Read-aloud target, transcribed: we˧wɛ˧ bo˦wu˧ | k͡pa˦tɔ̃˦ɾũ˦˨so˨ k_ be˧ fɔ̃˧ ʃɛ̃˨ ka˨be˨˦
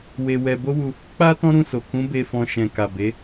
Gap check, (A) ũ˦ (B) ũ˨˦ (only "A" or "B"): B